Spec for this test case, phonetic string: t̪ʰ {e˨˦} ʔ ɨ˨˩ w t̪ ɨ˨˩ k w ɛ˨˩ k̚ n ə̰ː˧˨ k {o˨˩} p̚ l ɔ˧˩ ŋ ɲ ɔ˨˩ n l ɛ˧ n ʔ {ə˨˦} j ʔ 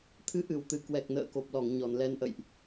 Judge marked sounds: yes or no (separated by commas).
no, yes, no